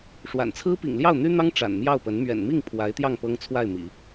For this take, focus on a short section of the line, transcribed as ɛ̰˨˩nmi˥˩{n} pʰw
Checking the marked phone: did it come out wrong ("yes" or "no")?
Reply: yes